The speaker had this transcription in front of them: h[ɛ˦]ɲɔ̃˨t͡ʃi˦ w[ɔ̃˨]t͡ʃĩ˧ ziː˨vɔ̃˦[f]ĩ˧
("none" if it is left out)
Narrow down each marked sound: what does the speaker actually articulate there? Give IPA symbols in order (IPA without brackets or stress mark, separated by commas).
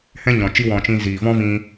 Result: ɛ̃˦, ɔ̃˨, v